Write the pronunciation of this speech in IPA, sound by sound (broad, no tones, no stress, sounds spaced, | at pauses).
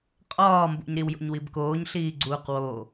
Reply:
qʼ ɒː m b ṵ ɲ ɾ i w j o̰ ɲ w i b k oː ɲ ɬ iː ɡ͡ǀ uː q w o